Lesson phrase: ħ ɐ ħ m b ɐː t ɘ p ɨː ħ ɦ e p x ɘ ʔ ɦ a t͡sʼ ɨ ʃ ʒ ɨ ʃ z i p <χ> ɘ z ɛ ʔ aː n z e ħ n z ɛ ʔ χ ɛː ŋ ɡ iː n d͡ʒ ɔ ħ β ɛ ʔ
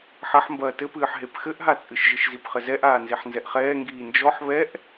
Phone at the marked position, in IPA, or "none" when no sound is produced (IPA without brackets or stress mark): χ